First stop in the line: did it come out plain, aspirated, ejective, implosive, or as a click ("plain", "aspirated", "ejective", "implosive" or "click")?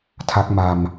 aspirated